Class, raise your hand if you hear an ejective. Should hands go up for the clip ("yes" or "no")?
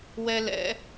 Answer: no